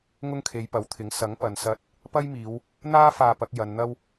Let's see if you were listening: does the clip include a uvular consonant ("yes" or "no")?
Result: no